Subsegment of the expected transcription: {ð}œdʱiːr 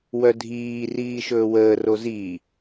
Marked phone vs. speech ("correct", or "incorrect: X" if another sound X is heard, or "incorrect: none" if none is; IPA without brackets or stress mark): incorrect: w